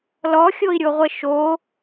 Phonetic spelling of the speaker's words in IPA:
l ɔ xʲ o i̯ ɾʲ o ʁʷ ə ʃ o

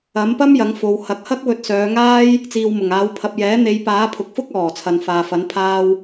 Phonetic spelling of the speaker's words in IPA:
ɐ˨˥ m p ɐ˥ m j ɐ˨˥ ŋ f o˨˧ w h ɐ˨˥ k̚ h ɐ˥ k̚ w ɵ˧ t̚ s œː˨˧ ŋ aː˥ j | t͡s iː˨ w m ʊ˨˩ ŋ aː˨˧ w pʰ ɐ˨ p̚ j ɛː˨˥ n̪ e˨˧ j p aː˨˥ pʰ ʊ˨˥ k̚ f ʊ˥ k̚ ɔː˨˩ t͡sʰ ɐ˨ n f aː˨ f ɐ˨˥ n pʰ aː˧ w

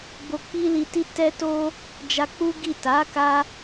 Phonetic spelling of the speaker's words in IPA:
b o˧ k͡p i˦ l i˧ t i˦ t ɛ˦ t o˦ | d͡ʒ a˧ k͡p u˦ ɡ i˦˨ t a˨˦ k a˧

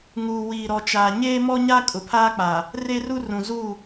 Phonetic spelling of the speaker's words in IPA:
ŋ uː˨ w iː˨ ɾ ɔ˨ t͡ʃ aː˨ ɲ eː˦ m ɔ˦ ɲ a˦ kʼ ʊ˨ pʰ aː˦ k͡p aː˨ | r e˦ r u˦ r ũ˨ z uː˦˨

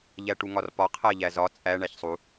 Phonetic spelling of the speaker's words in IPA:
ʎ æ ʈ u ŋ ɒ r p ɒ qʰ æ ʎ æ z ɒ t͡sʼ æ ɳ æ ç sˤ u

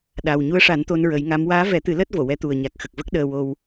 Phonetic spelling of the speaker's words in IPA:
ɗ a˨˩ w ɲ u˧˥ ə̯ ʂ a˨˩˦ n t̪ o˧ n ɹ ə˨˩˦ j ŋ a˧˥ m w aː˧˥ v ɛ˨˩˦ t̪ ɨ˨˩˦ l əː˦˥ t̚ v o˨˩˨ w ɛ˧˥ t̪ u˨˩ ə̯ ɲ a˨˩ k̚ x ə˨˩ k̚ v ə˦˥ k̚ ɗ əː˧ w o˧ w

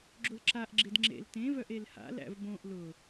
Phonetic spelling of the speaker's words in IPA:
ɡ͡ǁ o l ǁ a ʔ ɡ͡ǁ e d ŋ͡ǁ ḛ l t ẽ v œ ʔ e l h a̰ l æ̰ v b õ ʔ l ʊ

